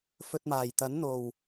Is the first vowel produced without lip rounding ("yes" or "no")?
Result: no